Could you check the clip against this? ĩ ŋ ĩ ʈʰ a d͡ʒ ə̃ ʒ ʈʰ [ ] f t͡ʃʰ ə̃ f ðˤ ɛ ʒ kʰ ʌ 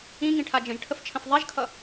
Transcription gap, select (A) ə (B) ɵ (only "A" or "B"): A